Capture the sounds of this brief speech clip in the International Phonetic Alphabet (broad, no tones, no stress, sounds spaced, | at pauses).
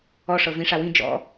ɔ ʂ ɤ v ĩ ʂ a w ĩ d͡ʒ ɔ̰